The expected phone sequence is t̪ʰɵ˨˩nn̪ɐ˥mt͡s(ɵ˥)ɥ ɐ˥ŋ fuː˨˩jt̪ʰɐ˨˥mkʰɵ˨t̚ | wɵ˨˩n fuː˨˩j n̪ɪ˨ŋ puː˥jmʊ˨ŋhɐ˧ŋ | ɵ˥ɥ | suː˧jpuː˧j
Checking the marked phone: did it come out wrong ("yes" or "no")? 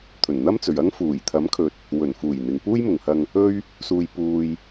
yes